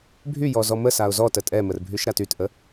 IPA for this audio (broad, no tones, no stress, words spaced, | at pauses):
bʱy jɔzɔmə saʊ̯zɔ tətʼɛmər bʱyʃɾatytʔə